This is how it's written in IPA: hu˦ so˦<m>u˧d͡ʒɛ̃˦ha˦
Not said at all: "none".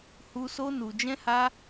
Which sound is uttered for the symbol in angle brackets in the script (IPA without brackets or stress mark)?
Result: n